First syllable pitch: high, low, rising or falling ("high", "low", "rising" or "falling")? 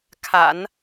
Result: low